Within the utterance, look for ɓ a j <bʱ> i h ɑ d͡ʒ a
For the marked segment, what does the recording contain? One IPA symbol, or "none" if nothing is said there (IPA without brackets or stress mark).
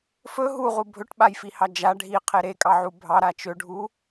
f